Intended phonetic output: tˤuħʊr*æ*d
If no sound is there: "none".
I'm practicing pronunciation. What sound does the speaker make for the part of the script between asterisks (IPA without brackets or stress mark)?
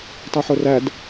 æ